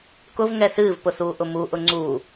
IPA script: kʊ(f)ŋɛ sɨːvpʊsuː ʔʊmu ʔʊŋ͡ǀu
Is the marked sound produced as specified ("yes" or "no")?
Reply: no